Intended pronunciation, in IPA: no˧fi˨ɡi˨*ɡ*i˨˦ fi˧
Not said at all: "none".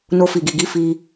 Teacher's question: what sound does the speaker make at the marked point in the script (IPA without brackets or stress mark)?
ɡ